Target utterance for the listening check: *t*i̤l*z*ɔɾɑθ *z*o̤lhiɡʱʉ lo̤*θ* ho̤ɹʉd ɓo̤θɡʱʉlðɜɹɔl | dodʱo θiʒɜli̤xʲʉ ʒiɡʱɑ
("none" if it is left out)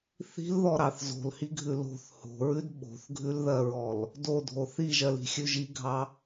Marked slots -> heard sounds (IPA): θ, ð, z, θ

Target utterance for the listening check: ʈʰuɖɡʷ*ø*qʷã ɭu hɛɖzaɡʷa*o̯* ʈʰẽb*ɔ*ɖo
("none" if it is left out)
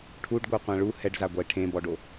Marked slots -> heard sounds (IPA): œ, e̯, ɔ

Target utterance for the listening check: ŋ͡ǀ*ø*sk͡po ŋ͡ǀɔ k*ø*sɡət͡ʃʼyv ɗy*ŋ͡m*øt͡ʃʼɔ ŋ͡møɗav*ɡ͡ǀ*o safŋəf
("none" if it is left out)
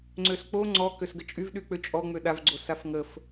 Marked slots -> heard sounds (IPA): ø, ø, k͡p, ɡ͡ǀ

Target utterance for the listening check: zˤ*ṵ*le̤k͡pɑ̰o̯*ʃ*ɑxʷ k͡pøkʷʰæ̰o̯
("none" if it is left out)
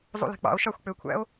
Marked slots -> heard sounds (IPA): ṵ, ʃ

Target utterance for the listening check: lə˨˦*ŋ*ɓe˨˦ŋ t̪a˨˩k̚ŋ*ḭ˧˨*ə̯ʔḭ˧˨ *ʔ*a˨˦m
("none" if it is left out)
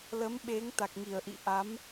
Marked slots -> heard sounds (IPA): m, i˧˩, ʔ

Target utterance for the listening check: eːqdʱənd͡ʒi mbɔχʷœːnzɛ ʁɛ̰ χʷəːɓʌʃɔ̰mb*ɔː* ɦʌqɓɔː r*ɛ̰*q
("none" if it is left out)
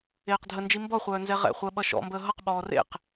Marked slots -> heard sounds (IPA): əː, ḛ

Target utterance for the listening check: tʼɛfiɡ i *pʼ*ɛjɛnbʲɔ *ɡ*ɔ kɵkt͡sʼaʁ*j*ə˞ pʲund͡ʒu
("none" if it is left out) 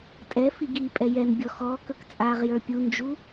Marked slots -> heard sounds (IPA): pʼ, x, j

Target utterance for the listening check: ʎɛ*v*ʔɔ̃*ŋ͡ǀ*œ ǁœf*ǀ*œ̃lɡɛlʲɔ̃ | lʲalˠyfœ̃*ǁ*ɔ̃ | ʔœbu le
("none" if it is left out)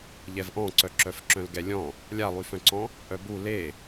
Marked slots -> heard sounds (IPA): v, ǀ, ǁ, ǀ

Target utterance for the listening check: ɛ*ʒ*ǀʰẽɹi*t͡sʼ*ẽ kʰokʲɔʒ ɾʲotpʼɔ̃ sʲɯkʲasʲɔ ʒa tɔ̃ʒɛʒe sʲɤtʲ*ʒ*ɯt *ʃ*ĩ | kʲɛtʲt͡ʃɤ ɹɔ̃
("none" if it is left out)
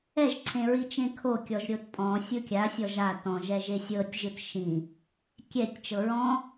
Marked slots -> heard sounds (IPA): ʒ, t͡ʃ, ʒ, ʃ

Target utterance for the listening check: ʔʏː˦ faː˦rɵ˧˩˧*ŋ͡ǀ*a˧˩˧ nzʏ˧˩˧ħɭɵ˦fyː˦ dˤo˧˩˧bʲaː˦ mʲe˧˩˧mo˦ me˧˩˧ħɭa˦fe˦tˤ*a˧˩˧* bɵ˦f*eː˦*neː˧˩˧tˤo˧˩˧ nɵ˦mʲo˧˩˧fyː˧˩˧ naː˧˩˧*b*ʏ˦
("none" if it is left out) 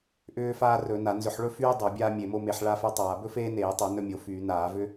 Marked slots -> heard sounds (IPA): n, aː˧˩˧, eː˦, v

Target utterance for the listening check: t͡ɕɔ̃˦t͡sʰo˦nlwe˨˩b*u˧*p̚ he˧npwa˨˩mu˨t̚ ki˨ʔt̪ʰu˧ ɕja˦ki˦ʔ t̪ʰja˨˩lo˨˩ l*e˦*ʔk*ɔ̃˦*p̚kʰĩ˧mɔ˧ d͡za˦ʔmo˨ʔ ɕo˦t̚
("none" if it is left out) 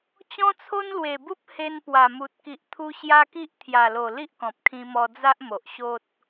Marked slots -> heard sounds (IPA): u˦, i˦, ɔ̃˨

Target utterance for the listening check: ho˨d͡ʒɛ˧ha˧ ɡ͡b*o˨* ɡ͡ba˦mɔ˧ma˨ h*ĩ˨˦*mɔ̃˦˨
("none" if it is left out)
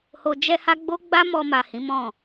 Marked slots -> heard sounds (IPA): o˦, ĩ˨˦

